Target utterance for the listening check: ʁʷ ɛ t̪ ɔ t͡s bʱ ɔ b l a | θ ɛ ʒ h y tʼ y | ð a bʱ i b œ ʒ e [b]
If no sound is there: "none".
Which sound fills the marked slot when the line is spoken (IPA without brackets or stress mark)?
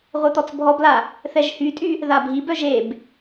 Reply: b